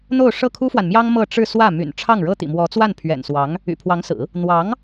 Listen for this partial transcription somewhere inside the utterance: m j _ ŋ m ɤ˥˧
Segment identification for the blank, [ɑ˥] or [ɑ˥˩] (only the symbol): ɑ˥